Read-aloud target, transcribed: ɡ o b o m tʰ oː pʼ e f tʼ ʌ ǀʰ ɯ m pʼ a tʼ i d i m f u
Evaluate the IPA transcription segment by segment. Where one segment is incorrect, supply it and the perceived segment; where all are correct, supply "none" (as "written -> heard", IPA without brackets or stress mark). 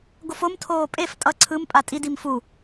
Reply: b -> f